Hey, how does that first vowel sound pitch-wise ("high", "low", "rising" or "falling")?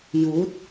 rising